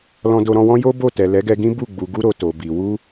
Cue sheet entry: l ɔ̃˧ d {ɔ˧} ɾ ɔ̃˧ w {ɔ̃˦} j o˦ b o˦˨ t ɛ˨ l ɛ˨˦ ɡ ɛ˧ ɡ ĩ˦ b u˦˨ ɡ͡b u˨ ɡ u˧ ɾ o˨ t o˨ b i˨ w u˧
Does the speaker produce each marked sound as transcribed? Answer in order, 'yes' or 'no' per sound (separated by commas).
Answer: no, yes